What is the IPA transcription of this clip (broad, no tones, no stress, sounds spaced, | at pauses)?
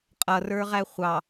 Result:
qʼ ʌ r ə˞ ʁ æ χʷ ɑ